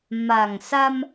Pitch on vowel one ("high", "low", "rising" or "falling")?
low